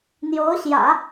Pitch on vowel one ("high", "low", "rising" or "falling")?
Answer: rising